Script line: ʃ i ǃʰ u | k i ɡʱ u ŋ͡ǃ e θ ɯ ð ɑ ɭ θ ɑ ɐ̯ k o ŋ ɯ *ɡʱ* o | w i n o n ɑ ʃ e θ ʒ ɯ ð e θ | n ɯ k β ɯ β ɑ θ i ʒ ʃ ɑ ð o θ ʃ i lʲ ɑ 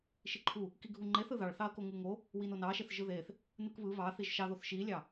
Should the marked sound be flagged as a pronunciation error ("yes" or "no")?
yes